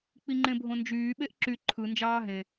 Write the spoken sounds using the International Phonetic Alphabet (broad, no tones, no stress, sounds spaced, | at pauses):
k͡p i ŋ͡ǃ ẽ bʱ õ n d͡ʒ yː ɓ e ʔ ǁ y ǃʰ ɯ n d͡ʒ ɑː ɦ ẽ